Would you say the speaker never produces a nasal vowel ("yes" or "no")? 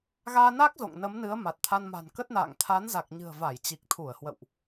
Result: yes